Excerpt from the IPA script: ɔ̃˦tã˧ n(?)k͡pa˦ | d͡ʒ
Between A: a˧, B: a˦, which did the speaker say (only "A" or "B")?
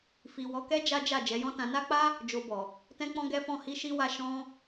B